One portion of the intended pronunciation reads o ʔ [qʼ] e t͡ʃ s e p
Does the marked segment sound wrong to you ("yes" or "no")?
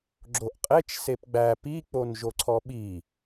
no